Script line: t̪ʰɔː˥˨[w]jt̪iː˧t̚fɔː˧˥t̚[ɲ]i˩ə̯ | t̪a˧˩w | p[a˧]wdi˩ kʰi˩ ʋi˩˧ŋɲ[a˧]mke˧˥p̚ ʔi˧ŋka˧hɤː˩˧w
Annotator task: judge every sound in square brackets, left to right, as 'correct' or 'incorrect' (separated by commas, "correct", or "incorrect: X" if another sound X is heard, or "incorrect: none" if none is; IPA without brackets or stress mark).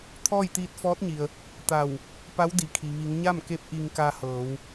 incorrect: none, correct, incorrect: a˧˥, incorrect: a˥˨